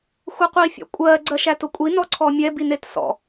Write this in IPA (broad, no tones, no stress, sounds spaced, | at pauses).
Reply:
xʷ æ qʷ i fʲ ɔ̰ kʷʼ ɜ ɡ͡ǀ ɜ ʃ æ t ʊ kʷʼ i n ɔ ǀʰ ɔ mʲ ɛ b i n e t s ɔ̰